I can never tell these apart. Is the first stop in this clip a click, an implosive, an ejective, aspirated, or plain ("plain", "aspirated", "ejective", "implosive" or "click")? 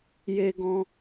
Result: plain